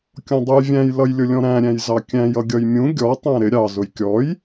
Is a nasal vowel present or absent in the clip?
present